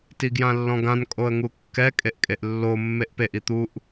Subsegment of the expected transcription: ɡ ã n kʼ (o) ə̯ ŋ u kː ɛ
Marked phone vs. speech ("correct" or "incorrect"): correct